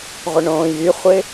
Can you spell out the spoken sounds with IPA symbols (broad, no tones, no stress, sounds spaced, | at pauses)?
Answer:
ʁʷ ɪ ɳ õː j y χʷ ɪ